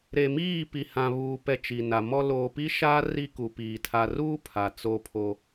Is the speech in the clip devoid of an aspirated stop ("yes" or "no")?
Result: no